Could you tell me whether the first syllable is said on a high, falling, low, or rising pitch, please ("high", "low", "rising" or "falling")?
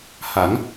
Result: rising